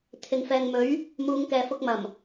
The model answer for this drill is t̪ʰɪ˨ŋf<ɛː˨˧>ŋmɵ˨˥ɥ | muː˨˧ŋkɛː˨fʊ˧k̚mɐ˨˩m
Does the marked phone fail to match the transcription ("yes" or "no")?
yes